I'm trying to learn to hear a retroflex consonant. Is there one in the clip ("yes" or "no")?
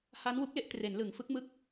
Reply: no